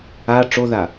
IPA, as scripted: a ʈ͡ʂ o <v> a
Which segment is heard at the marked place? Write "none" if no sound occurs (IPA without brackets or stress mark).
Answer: ð